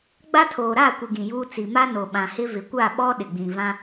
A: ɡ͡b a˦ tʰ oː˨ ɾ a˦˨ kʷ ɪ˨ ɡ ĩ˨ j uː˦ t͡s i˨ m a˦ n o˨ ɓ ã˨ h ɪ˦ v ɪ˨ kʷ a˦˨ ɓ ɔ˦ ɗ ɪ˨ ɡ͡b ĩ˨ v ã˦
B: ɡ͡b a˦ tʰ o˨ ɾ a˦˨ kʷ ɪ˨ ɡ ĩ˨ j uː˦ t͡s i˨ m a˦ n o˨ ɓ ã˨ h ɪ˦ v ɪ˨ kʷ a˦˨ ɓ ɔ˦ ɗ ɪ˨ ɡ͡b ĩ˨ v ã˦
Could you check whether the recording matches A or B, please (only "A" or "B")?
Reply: A